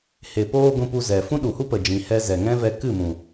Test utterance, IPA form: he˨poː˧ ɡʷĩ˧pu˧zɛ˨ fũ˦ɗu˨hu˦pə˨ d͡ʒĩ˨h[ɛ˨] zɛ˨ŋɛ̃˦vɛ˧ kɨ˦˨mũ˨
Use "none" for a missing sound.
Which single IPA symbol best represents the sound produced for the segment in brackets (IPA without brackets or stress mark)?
ɛ˧